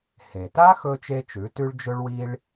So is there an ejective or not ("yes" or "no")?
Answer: no